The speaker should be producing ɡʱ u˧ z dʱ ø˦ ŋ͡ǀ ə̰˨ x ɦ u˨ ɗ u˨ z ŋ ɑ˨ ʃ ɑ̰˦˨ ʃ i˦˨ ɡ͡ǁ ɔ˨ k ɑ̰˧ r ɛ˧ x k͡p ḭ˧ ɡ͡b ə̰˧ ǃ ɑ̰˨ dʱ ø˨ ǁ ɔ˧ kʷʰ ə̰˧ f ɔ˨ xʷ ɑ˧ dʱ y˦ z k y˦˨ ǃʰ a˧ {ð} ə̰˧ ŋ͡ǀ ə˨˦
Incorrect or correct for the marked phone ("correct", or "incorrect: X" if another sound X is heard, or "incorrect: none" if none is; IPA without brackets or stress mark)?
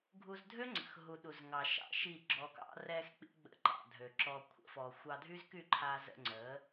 incorrect: z